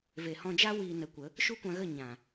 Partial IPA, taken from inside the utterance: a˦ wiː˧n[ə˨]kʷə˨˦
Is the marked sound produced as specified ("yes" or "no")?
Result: no